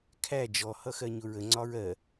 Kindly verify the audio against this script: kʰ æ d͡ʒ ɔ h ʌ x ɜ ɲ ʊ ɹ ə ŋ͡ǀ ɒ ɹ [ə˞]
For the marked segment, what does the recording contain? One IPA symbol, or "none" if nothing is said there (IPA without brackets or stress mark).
ɜ